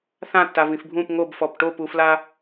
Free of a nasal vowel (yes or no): no